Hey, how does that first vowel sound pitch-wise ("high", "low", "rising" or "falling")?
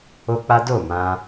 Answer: high